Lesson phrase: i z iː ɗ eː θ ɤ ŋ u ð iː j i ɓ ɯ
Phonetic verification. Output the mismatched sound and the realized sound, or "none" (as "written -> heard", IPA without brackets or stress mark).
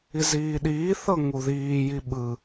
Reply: eː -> iː